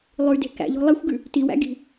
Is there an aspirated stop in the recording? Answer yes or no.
no